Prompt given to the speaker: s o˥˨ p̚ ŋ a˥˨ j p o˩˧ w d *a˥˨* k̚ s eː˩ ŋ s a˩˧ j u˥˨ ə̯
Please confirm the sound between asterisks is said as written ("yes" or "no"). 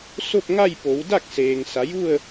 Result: yes